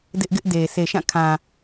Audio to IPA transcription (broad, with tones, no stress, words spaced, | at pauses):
dɪ˦ʔɡɪ˦ʔde˨ se˨ʃã˦˨kʰã˨